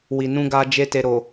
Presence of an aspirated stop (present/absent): absent